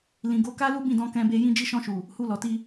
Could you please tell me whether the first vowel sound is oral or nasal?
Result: nasal